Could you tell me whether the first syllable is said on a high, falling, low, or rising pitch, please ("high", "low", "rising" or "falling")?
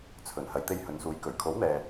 low